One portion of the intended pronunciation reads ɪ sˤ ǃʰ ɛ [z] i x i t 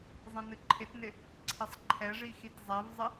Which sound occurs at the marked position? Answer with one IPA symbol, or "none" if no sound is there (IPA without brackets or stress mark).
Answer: ʐ